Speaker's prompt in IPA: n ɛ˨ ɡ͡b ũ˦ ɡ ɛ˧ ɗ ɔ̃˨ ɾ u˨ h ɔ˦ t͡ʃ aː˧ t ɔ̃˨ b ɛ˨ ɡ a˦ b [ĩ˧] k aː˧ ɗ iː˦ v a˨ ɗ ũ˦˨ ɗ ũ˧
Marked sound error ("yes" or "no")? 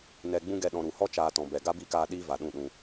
yes